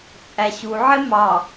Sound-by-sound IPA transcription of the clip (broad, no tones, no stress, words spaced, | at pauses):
t͡sʼæɕuʕɪ mɑ